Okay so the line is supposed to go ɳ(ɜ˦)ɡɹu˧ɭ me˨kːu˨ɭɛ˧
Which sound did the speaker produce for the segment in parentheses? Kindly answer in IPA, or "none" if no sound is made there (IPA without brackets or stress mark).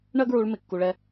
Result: ɜ˦